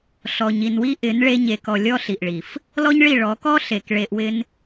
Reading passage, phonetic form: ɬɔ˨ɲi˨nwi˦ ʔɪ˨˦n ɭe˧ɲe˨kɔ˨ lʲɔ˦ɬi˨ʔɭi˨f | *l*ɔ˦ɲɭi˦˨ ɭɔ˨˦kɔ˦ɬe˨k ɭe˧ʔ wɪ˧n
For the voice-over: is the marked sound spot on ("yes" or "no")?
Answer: yes